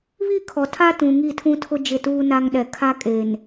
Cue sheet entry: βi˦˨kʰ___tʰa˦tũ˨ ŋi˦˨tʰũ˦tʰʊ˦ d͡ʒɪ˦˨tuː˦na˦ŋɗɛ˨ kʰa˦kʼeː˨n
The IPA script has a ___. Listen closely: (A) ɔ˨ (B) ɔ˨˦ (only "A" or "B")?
A